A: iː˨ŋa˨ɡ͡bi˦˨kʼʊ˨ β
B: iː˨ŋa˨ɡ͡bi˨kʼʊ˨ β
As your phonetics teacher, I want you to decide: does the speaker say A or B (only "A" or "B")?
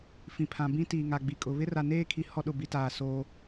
B